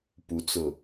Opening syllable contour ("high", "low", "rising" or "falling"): rising